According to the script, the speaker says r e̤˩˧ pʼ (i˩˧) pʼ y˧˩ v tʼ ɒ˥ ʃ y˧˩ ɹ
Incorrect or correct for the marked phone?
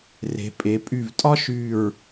incorrect: e˩˧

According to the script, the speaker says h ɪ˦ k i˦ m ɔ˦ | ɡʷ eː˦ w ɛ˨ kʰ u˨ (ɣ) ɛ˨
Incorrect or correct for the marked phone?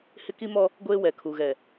correct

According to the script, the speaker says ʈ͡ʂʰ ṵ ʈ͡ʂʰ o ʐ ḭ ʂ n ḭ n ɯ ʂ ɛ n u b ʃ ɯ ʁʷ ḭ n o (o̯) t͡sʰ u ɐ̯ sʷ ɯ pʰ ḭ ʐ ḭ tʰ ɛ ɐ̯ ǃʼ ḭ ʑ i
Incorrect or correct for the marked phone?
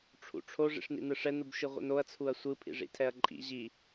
incorrect: ɐ̯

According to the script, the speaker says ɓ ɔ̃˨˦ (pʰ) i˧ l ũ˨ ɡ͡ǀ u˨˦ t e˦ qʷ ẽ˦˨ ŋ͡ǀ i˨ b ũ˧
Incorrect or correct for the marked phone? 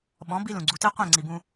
incorrect: b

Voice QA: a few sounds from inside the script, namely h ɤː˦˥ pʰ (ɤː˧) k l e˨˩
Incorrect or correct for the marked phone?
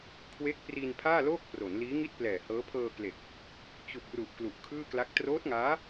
correct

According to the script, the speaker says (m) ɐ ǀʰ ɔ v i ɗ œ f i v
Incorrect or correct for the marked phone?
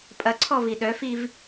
incorrect: pʼ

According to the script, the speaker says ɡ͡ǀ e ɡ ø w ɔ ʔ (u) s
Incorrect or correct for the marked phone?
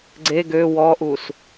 correct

